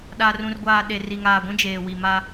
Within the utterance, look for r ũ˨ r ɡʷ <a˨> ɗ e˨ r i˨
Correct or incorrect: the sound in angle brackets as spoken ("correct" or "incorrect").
incorrect